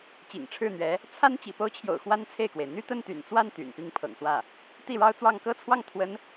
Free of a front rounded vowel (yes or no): no